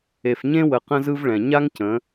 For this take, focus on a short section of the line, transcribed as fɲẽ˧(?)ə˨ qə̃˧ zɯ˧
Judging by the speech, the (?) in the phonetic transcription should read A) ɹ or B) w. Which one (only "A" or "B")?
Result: B